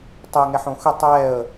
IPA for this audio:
tˤ ɛ ŋ ɛ ħ õ x ʏ tˤ ɛ ə̯

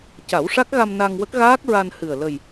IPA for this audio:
c a˨˩˦ w ʂ a˦˥ k̚ ɣ a˧ m n a˧ ŋ w ə˦˥ k̚ ɣ aː˦˥ k̚ ɹ a˧ n h ɨ˨˩ ə̯ l ə˨˩ j

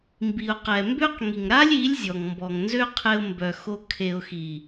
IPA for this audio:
m b i˨ ʊ̯ q ɛ˨ m b ø˦ q ŋ i˨ ŋ ɾ a˦ lʲ i˨˦ lʲ zʲ ɔ˨ ŋ m b ɔ˨ ŋ n z ø˦ qʰ e˧ ʊ̯ m b œ˨ x o˧ kʰ e˨ ʊ̯ x i˨

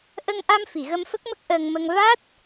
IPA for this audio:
ʔ ə˧ ŋ ʔ a˧ m f i˨˩˨ ɣ ə˧ m f ə˦˥ k̚ m ə˦˥ k̚ ʔ əː˧ ŋ m ə˧ ŋ v a˦˥ t̚

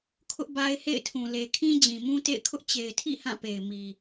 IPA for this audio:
kʰ ʊ˦ ʔ b a˦ ɪ̯ h ḛ˦˨ ɪ̯ tʰ ũ˨ l e˨ kʰ ĩ˦ d͡ʑ ĩ˨ m ũ˦ t ḛ˦˨ ɪ̯ kʰ ʊ˦ ʔ t͡ɕ e˨ ɪ̯ tʰ ḭ˦˨ h ã˦˨ p e˨ ɪ̯ m i˨

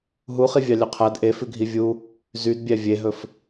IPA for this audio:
ɦ u χ i vʲ ɑ lʲ ɵ qʰ æ d ʔ e f ʉ ɡʱ i vʲ u | z y d bʲ æ vʲ e ɦ ɵ f

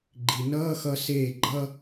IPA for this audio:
ɡ͡ǃ i˩ n ʌː˧˥˧ x ʌ˧ s eː˧˩ ɡ͡ǃ ʌ˧

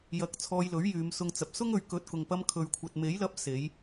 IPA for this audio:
j ɐ˨ k̚ t͡sʰ ɔː˧ j l ɵ˨˥ ɥ j yː˨˧ m s ʊ˧ ŋ t͡s ɐ˨ p̚ s ʊ˥ ŋ ɵ˨ ɥ k ɵ˨ t̚ k ʊ˨ ŋ p ɐ˧ m kʰ ɵ˨ ɥ kʷʰ ɐ˨ t̚ m e˨˥ j l ɐ˧ p̚ s e˨˧ j

